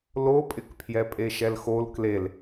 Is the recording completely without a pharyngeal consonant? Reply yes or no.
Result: yes